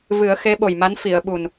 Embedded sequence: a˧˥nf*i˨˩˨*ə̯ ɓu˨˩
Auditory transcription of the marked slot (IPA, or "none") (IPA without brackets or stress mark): i˨˩˨